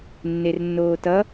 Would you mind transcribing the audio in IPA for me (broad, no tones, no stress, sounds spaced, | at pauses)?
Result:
nː e r nː oː t ʌ